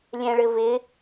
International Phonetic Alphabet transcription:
lʲ ɛ̃ ɭ ɘ v ɪ

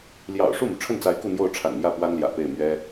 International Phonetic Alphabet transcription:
l j ɑ̰˨˩ ʊ̯ ʂ u˥˩ m u˩ ʈ͡ʂʰ ə˥˩ n t͡s a˧˥ ɪ̯ k u˥˧ n̪ j o˥˩ ʊ̯ ʈ͡ʂʰ a̰˨˩ n m j ä˥˩ p w a˥ n l j ä̰˨˩ p e˥˩ ɪ̯ m ɥ ɛ˥

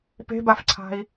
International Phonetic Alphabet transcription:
p e̤ b a f ǀʰ a̤ i̯

